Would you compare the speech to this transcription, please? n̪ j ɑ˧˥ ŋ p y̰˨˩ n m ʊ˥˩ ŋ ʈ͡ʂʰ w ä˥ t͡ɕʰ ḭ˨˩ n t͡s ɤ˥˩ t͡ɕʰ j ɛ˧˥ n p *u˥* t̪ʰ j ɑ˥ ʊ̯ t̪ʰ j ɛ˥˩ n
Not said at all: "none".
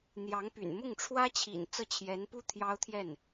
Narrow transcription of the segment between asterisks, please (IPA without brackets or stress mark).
u˥